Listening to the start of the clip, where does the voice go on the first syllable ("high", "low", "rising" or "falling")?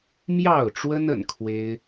falling